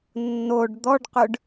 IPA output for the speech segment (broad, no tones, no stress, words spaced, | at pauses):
nːoɖ d̪ɔɖqʏɖ